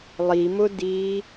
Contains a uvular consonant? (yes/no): no